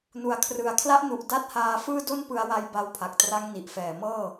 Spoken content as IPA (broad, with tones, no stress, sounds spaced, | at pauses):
n u˨˩ a̯ kʰ r ɯ˨˩ a̯ kʰ l a˦˥ ʔ n u˨˩ ʔ d a˦˥ t̚ h aː˧ f ɯː˥˩ d o˥˩ n p ɯ˧ a̯ w a˧ j b a˧ w pʰ a˨˩ k̚ t r a˦˥ ŋ n i˨˩ ʔ f ɛː˨˩ m ɤː˥˩